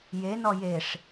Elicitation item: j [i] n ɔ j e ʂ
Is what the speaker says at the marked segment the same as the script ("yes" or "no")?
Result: no